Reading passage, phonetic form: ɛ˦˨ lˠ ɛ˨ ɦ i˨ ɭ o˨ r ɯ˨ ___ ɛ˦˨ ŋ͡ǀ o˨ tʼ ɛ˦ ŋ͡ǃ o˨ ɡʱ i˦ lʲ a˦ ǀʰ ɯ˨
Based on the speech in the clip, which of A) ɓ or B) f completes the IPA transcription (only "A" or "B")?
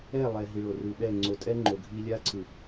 A